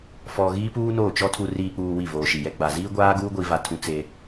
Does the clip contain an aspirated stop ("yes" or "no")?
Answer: yes